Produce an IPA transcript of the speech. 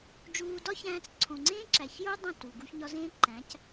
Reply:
d͡ʒuː˧dɒ˦çæ̃ː˧t͡s ǀʰõ˨ŋ͡ǀẽː˦ǁæ˨çjo˦ dˤõ˦˨t u˨ ɡu˧çɲɒ˧zẽː˦ ǃæ̃˨˦c

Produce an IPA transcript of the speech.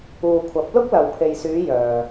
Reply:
uː˨kʷʰɐ˨˥p̚lʊ˥k̚ lɐ˨wpʰe˨jsyː˨˧ jœː˨

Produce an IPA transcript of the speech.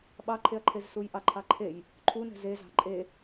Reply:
ɓɑǃʰeɐ̯ǃʰez sujʔɑǃʰɑǃʰej | ǃʰunɛ̤ zezɑ̤ ǃʼe

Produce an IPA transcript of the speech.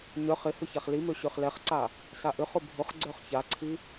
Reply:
ɲœχ ɪ hʏçaχlimø ɕøχlɛχǀa | saʔʏχʊ bʱʊχɡ͡ǀœχ çaǀʰi

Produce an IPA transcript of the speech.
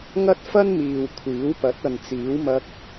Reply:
ŋɐ˥t̚fɐ˥nmiː˨w kʷʰiː˨˥wpɐ˨˥t̚ ɐ˨nt͡siː˨˥wmɐ˧k̚

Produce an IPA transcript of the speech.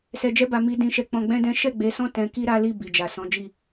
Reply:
sɛ˨d͡ʒɛ˧ba˨ mi˨dĩ˨ʃɛ˨ k͡pɔ̃˧ɡ͡bɛ̃˦dɛ̃˦ ʃɛ˦˨ɡ͡be˨˦sɔ̃˦ tɛ̃˧ ki˦ɾa˦li˦˨ bi˨d͡ʒa˨ sɔ̃˨˦d͡ʒi˦˨

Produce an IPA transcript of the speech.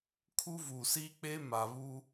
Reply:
kʰu˦vuː˨siː˦k͡pe˦ ma˨βuː˦

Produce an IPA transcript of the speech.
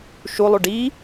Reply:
ʃulˠu ɖi

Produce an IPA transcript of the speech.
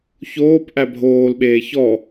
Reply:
çoːp ʔæbʱoːlɓeː çɔ

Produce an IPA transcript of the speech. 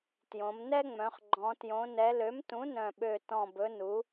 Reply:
tjõ˩˧mnɛ˦ŋ͡mœ̃˩˧χ ɡ͡ǃɔ̃˩˧ tjõ˩˧nɛ˩˧lø˩˥mtũ˩˥ nœ̃˨˩ɓø˨˩ tɔ̃˨˩bɵ˩˧nu˩˧

